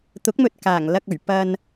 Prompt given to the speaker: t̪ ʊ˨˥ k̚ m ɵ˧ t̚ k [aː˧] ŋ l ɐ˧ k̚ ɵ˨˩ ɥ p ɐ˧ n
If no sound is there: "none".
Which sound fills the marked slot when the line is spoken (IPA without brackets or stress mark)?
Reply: aː˨˩